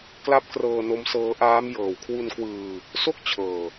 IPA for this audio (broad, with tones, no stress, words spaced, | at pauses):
kla˦˥p̚krɤː˧no˦˥m sɤː˦˥ʔaː˦˥m jɤː˨˩wkʰwu˧nkwɯː˧ | so˥˩k̚ t͡ɕʰɤː˧